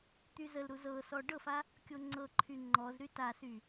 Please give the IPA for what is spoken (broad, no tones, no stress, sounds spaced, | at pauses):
t̪ y z ə l ɾ u z ɤ s ɔ ɖ ɤ f a | kʲ o ŋ͡ǀ ɤ ǃʰ y ŋ͡ǃ ɔ z ɾ y t a s y